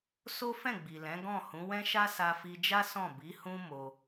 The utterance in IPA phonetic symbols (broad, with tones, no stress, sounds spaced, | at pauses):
s o˦ f ɛ̃˦˨ ɡ͡b i˨ l ɛ̃˨˦ ɡ ɔ̃˦˨ h ũ˨˦ w ɛ̃˦ ʃ a˦ s a˧ f i˧ d͡ʒ a˦ s ɔ̃˦˨ b i˨˦ h ũ˦ m o˧